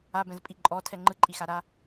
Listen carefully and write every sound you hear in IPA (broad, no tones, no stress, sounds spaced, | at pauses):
a b ɛ̃ z pʼ i ǃʼ ɔ tʰ ɛ ŋ͡ǃ ɯ ǃʼ i x a ɾ a